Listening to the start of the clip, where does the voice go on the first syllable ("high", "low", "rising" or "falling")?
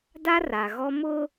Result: high